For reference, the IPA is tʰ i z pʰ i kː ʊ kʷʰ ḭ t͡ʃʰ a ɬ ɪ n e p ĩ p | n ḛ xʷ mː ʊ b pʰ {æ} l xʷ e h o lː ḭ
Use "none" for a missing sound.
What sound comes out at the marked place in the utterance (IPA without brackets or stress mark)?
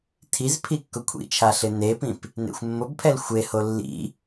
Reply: ɛ